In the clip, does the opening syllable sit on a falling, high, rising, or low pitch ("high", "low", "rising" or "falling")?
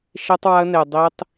high